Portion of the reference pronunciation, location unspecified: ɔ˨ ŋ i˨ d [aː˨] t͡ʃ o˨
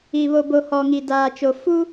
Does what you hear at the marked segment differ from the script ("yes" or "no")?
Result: no